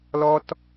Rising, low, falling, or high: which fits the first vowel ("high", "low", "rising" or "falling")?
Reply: high